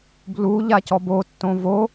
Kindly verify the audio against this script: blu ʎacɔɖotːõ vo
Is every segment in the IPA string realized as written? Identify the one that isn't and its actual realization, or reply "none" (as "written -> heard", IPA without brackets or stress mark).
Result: ɖ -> b